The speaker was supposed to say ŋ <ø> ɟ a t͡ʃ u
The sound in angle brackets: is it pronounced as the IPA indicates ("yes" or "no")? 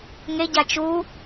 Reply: no